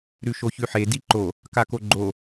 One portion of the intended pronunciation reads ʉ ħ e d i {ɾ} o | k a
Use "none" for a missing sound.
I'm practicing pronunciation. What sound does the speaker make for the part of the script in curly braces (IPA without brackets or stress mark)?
ǃ